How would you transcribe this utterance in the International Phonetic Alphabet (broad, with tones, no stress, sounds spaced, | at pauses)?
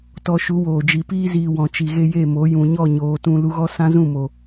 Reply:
t ɔ˧ ʃ u˨˦ w oː˨ d͡ʒ i˨ p iː˧ z iː˨ w ɔ̃˨ t͡ʃ i˨ ɣ e˧ j e˦˨ m o˨˦ j ũ˨ ɲ ɔ˦˨ ɲ oː˨ t ũ˧ l u˧ ɣ ɔ˦ s ã˦ z ũ˦˨ m o˨